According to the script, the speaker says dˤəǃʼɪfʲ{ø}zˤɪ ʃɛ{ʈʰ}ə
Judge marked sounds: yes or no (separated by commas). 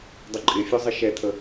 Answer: no, no